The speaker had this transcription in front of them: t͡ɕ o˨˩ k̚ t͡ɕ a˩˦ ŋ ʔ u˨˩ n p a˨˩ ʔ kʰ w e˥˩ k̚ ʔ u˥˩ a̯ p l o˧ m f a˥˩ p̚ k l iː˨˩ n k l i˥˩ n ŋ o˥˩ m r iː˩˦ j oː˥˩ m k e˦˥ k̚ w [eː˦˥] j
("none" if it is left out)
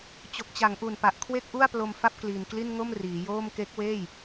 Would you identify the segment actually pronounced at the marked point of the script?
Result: eː˥˩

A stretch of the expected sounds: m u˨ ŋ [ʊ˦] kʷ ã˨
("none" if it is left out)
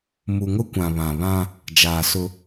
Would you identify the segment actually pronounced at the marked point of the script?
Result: ʊ˦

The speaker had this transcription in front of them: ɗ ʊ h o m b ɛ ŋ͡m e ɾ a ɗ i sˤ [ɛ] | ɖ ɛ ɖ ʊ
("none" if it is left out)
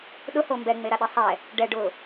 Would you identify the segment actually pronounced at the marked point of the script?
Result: ɛ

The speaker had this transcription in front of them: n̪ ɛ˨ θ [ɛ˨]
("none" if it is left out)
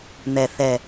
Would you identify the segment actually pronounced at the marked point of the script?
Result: ɛ˨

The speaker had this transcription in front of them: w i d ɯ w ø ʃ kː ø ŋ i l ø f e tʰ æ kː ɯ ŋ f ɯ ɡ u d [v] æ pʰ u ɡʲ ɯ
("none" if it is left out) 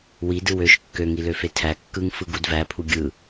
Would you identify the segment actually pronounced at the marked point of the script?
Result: v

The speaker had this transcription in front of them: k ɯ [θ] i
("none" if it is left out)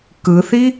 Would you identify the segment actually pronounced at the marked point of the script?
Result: θ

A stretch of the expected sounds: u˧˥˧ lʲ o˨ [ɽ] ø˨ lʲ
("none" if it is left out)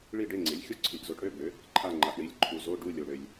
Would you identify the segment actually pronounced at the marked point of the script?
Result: ɽ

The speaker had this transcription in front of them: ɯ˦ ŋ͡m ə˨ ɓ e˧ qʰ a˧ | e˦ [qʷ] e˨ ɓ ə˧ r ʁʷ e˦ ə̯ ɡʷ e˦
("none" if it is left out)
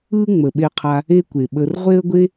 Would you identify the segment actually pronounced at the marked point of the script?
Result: kʷ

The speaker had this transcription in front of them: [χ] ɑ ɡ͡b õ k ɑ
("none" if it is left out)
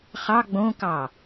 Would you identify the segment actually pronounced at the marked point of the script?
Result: χ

